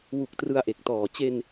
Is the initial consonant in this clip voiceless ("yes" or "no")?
no